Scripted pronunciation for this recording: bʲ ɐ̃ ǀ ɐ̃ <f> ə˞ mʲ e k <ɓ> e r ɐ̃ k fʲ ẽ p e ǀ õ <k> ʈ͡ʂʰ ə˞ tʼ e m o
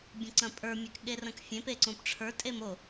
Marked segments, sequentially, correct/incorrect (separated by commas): incorrect, incorrect, incorrect